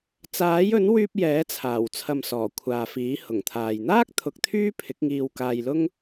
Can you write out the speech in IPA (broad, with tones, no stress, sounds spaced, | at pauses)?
t͡s aː˨˥ j ɵ˨˥ n w yː˧ p̚ j ɛː˨˥ t͡sʰ aː˨˩ w t͡sʰ ɐ˨ m s ɔː˨˩ kʷʰ aː˨ f iː˨˥ h ʊ˨˩ ŋ t̪ʰ aː˨ j n̪ aː˥ k̚ t̪ʰ ʊ˨˥ k̚ t̪ʰ yː˥ pʰ ɪ˨˥ k̚ ŋ iː˧ w k aː˧ j l ʊ˥ ŋ